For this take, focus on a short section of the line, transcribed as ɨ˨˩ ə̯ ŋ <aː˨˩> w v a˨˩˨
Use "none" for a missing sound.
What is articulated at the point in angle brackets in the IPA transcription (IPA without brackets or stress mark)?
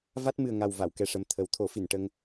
a˨˩